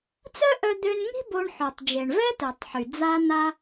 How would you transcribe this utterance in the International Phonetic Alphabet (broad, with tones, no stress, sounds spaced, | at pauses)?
t͡s œ˥ ʔ œ˧ d̪ ø˧ n ŋ i̤˥ b o˧ ɳ ħ ø˩ tˤ d͡ʒ e˩ ɳ v ɛ˥ t ø˩ tˤ ħ y˩ d͡z a˧ n̪ a˧